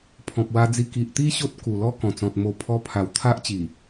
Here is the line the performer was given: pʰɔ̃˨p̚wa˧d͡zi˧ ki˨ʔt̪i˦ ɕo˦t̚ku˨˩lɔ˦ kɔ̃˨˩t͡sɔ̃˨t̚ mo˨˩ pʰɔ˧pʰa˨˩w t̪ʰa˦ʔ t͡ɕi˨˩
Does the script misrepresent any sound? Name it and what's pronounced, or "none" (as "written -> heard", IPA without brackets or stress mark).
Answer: none